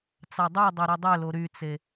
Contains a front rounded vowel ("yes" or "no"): yes